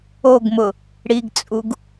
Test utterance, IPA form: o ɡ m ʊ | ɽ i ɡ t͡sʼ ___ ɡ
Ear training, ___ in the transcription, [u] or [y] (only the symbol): u